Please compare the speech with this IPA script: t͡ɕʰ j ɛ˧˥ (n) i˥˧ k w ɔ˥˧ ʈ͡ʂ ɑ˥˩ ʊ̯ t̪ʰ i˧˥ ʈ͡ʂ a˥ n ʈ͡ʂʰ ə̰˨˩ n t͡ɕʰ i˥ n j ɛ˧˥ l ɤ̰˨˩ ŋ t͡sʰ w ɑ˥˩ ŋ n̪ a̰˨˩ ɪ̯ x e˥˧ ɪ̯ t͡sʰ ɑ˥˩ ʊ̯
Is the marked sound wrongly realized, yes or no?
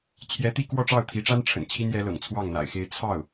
yes